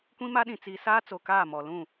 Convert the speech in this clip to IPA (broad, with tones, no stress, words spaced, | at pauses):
kʷĩ˦ma˦ɗĩ˨ t͡si˨saː˦t͡so˨ kaː˦˨mɔ˨ lũ˦˨